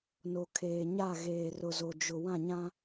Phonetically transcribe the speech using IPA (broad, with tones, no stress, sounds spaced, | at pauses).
n o˨ kʰ eː˨ ɲ a˦˨ ɣ eː˨ r ʊ˨ z o˨ d͡ʒ ʊ˨ w ã˦˨ ɲ ã˦